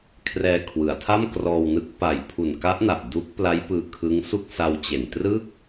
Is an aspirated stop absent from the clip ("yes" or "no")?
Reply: no